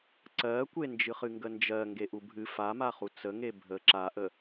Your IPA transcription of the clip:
ǀɜkʷe nd͡ʒɨχɨŋɡənd͡ʒɜ ŋɡeʔubʱɨ famaχu t͡səŋe bʱə ǁaʔə

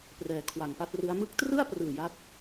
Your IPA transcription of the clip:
prɛː˩˦kʰwa˨˩ŋpa˥˩t̚rɯ˦˥a̯ mɯ˦˥k̚trɯ˥˩a̯ prɯː˨˩ja˦˥t̚

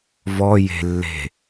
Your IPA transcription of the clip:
vɔ je̤ lːe̤

